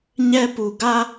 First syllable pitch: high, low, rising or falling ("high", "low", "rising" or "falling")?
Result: high